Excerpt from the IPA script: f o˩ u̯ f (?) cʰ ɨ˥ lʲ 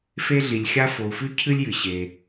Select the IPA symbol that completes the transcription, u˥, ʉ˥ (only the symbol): ʉ˥